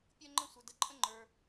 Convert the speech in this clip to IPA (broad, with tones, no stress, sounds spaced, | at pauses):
pʲ əː˥ ŋ͡ǃ ə̃˥ sʷ ə˞˩ d ə˩ ǃʼ ə̃˥ ŋ͡ǃ ə˞˩